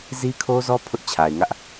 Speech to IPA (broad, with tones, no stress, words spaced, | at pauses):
zi˦kʰo˦zɔ˦ pʰʊ˦ʔt͡ɕʰa˨ɪ̯ŋä˦ʔ